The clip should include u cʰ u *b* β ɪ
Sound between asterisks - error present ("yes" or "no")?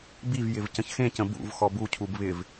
no